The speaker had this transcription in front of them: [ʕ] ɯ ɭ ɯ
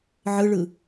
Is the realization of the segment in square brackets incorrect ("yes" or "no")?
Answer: no